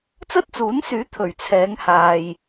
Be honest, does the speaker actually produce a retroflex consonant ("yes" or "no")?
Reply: no